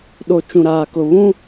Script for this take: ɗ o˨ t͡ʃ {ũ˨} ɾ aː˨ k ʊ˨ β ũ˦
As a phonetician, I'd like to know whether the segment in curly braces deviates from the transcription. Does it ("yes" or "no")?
no